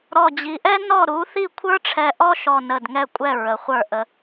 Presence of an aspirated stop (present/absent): present